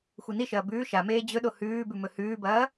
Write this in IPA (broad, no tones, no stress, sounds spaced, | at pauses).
xʷ i n i ʃ ɐː b ʉː ʃ a m eː d͡ʑ ɵ ɗ o h ʉː b ʉ m ɵ h ʉː b ɐː